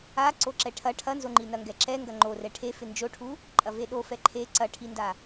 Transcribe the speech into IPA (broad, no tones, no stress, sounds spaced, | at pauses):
a ǀ o ǁ ɛ ʈʰ ɐ ʈʰ ɐ n z o ŋ͡ǃ i n ɐ ŋ ɡ ɛ ǁ ɛ ŋ ɡ ɐ ŋ͡ǃ o r ɛ ʈʰ e f ɪ n d͡ʒ o ʈʰ u | ǃʼ ɐ v e ɗ o f ɛ ǃʰ e ǀ ɐ ʈʰ i n d a